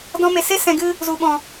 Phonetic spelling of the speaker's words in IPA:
dɔ̃˧me˨se˦ sɛ̃˨ɡɨ˧ | zu˨ɓɔ̃˨

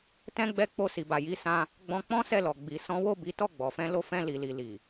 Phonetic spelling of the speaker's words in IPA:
tɛ̃˦ ɡ͡bɛ˧k͡po˧si˨ba˨ ji˨˦sã˧ | ɡ͡bɔ̃˧k͡pɔ̃˦ sɛ˦˨lɔ˨ ɡ͡bi˨ sɔ̃˨˦wo˦˨ bi˨˦tɔ˦˨ɡ͡bɔ˨fɛ̃˧ lo˧fɛ̃˧ li˨li˨ li˨

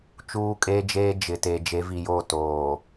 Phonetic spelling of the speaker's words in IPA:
t͡ʃuː˦kʼeː˦d͡ʒeː˦ d͡ʒɪ˨te˨ d͡ʒe˨˦vi˨joː˦˨ toː˨

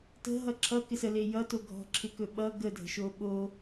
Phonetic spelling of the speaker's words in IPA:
tə̤ɦʌ ǁʰʌ kɪsəle jʌto ɡʱɔ̤ǁʰɪkɵ ɓʌ ɡədʱə̤ʃo ɓo

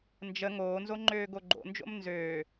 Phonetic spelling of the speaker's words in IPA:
nd͡ʒə ŋoːnzo ŋ͡ǃøːɡoɡ͡ǃo̰nd͡ʒo̰m nzøː

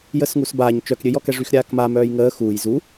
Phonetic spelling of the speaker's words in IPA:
jəːsŋusbaːɲ t͡ʃœkɾʲøjɔkɛ ʐyxɾʲaːkma mœːjŋəː xuːj zu

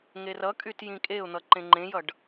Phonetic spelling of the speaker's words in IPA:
ŋerʌkʼyt jĩkʼeʊ̯n̪ʌ ǃẽŋ͡ǃẽjʌɖ

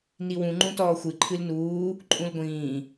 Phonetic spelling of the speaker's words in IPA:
niwũ ŋ͡ǃũtɔːxʷɨ ǃʰɨlnuː | ǃʼũlɡʷĩː

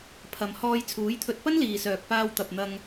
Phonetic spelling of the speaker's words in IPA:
pʰɐ˨m hɔː˧jt͡sʰuː˨˥jt̪ʰɵ˧t̚ pɐ˥nliː˨sœː˨k̚paː˧w t̪ɐ˨p̚n̪ɐ˧ŋ

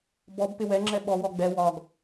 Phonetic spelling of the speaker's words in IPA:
bɔb pɪwɛ ŋ͡ǁɛɓɔ wɔɡ͡bɛ wɒɡ

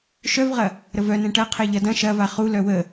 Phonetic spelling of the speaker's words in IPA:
ʃœvʁɐ | ɾəvœnɛ̃ ʈɐ qʰɛʎɐdɐ̃ ʃɐva χulœ wə

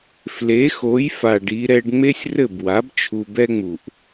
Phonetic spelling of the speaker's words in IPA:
fle˩˥xo˩˥jfa˩ɖ i˧ɾɛ˧ɖ ŋ͡me˥sʲrɘ˥˩bwa˩˥b t͡ʃʰu˧bɛ˥ŋ͡mu˩ʔ

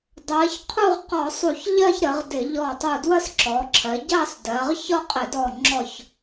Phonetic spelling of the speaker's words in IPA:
dˤɜ˩˧çqʰu˥˧ʁ qɔ˧˩˧sˤu˧˩˧çʎɜ˥˧ç ɾə˩˧ʁdɪ˧˩˧ ʎɔ˧˩tˤu˧˩ dwə˥˧sǁɔ˩˧ǁʰɜ˩˧ ɟɑ˥˧sdɜ˩˧ʁ çɒ˥˧qʼɪ˧˩˧dɔ˧˩ŋ͡ǁɔ˧˩ç

